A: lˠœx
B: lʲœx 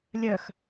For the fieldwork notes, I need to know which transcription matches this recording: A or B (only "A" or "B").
B